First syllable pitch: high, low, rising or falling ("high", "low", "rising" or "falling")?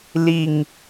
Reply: low